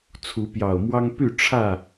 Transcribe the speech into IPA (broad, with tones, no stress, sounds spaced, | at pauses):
t͡sʰ u˨˦ p j ɑ˨˩ ʊ̯ m w ɑ˦ ŋ p y˥˨ ʈ͡ʂʰ ä˥˨